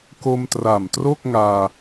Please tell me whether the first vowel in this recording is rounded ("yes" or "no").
yes